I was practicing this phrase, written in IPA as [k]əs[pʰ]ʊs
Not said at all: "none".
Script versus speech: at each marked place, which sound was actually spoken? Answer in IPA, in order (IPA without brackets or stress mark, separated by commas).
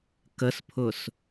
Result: k, pʰ